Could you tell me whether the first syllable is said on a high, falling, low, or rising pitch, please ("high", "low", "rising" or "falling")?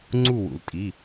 falling